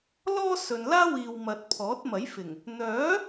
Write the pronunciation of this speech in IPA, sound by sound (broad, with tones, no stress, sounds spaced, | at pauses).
l ɔː˥ s ɵ˨ n l aː˥ w iː˨ w m ɐ˨ t̚ pʰ ɔː˨˥ t̚ m ɐ˨˥ j f ɪ˨˩ ŋ | n̪ œː˨˥